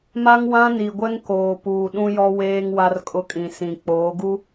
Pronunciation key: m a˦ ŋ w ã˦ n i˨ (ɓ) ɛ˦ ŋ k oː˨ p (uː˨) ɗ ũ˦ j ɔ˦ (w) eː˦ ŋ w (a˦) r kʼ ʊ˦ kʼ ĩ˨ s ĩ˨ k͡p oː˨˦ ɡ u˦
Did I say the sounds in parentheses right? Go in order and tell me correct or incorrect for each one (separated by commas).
incorrect, correct, correct, correct